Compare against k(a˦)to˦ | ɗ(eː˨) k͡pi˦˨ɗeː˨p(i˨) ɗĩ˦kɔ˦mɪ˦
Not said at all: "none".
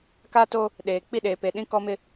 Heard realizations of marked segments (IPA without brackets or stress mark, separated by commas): a˦, eː˨, e˨